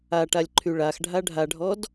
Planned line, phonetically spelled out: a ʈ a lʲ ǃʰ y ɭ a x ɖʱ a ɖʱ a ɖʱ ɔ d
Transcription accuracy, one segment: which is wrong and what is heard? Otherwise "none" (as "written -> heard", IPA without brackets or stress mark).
none